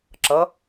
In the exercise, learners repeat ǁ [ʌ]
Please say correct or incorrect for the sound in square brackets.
correct